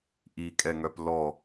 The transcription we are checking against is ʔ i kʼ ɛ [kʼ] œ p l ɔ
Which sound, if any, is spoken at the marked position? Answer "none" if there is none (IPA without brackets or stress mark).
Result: ŋ